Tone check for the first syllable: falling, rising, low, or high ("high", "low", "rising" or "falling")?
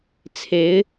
rising